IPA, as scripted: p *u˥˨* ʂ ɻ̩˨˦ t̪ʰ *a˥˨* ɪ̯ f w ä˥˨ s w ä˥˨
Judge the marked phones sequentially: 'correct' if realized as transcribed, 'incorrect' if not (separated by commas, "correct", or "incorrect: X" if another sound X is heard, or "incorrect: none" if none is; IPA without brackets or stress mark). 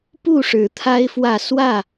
correct, incorrect: a˦